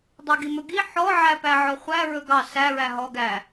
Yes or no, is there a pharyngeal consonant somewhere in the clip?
yes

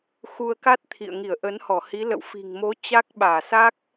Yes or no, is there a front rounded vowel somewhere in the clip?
no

